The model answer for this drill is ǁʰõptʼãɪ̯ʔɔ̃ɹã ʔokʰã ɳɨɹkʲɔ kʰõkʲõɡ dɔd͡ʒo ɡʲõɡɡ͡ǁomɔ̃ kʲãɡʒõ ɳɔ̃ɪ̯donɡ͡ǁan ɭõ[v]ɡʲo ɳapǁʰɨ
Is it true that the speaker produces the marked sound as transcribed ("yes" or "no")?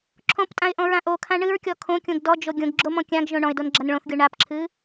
no